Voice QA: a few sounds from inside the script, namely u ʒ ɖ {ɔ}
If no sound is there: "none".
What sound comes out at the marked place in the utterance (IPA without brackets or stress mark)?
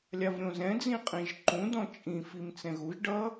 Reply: ʌ